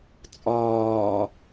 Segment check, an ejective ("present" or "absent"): present